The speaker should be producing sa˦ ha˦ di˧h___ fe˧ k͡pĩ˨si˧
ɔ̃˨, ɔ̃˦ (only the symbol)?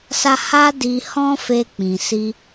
ɔ̃˦